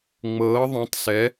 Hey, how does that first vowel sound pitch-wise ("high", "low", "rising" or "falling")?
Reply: rising